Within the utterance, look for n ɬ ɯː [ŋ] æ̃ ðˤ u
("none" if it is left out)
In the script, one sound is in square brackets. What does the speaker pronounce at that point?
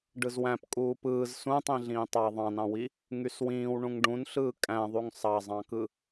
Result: kʼ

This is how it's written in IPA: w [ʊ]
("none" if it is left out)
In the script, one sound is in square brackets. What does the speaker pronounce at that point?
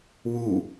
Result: u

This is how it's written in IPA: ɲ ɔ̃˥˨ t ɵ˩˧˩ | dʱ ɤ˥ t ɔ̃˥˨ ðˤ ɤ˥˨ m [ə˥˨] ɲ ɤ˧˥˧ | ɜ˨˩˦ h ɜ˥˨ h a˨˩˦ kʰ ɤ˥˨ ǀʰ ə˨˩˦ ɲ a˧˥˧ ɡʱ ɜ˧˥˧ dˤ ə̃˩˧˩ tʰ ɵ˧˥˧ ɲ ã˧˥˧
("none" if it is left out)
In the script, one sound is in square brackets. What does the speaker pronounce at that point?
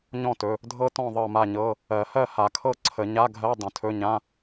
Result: a˥˨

